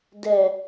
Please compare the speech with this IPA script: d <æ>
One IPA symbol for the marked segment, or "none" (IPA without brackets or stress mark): ɛ